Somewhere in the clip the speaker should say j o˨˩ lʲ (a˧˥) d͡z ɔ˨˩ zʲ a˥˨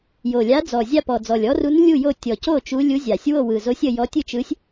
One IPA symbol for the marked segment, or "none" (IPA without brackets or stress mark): a˧˥